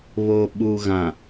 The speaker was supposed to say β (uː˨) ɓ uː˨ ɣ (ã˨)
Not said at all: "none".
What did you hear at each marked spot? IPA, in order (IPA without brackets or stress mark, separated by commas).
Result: oː˨, ã˨